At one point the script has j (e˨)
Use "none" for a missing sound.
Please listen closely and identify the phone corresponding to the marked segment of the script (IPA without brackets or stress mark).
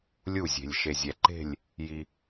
i˨